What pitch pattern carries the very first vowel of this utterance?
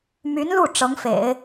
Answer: rising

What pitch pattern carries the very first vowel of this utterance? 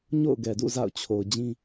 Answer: falling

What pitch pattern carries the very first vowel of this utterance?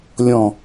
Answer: low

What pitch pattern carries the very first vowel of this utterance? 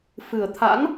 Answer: low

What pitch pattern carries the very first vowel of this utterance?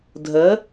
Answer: rising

